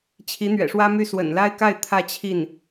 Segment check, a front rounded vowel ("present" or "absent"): present